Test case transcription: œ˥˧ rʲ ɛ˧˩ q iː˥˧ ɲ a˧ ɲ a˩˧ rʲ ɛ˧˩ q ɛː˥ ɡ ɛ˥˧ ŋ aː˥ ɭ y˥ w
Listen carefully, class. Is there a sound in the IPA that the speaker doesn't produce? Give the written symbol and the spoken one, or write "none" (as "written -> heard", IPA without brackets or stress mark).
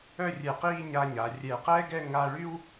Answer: aː˥ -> a˥